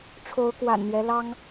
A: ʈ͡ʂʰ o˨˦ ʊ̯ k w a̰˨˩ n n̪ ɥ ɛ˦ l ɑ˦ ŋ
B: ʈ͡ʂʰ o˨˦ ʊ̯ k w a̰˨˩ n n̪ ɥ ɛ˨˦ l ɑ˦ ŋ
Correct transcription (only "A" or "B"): A